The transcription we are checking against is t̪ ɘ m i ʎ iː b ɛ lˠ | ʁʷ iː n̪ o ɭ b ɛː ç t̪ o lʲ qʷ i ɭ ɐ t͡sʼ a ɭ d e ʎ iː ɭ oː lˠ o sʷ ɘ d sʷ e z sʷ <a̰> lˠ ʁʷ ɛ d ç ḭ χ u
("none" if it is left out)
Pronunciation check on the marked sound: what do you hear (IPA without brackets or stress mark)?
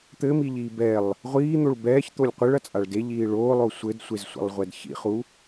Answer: a̰